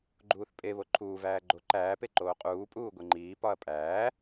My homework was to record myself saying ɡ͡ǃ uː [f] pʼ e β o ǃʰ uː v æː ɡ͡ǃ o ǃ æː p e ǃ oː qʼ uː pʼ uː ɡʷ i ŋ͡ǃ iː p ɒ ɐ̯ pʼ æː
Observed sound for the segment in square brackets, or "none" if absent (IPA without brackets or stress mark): θ